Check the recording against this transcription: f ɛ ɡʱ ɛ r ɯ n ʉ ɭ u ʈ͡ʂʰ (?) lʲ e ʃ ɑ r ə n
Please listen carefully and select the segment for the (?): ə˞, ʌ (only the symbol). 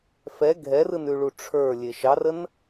ə˞